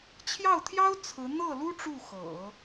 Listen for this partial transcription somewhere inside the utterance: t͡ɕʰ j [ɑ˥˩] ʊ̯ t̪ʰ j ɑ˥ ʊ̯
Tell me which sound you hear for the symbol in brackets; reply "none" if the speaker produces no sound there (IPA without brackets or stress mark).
ɑ˥˩